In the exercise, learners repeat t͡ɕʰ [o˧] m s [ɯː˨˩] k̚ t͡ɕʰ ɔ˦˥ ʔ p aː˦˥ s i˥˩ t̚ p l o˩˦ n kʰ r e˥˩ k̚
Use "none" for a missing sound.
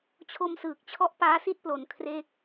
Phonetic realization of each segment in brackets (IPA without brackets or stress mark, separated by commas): o˧, ɯː˨˩